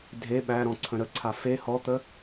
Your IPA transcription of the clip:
dʱe ɓæɾɔ̃ ǀʰə̃ɾəǀʰa fe hɔt̪ə

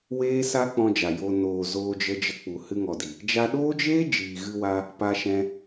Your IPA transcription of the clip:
weː˦sa˦k͡pɔ̃˧ d͡ʒa˨ jo˨ noː˨ zoː˧d͡ʒə˧d͡ʒə˧ k͡pu˨ hɨ˧ŋɔ˨di˨ | d͡ʒa˧ɗoː˦d͡ʒeː˦ d͡ʒiː˨ɣɨ˧wa˧ | pa˧ʃɛ̃˧

